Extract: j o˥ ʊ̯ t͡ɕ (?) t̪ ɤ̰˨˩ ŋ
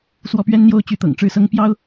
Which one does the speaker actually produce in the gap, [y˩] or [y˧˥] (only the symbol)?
y˧˥